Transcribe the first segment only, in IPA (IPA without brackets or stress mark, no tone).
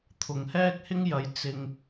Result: t̪ʰ